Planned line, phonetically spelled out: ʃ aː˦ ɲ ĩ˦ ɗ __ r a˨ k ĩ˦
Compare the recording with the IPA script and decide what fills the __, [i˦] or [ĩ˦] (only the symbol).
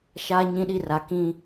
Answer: i˦